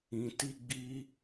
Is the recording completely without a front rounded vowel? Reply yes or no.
yes